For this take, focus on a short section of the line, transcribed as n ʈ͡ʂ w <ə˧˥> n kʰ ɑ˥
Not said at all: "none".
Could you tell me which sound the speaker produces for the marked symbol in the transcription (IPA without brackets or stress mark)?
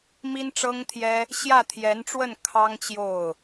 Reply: ə˥˩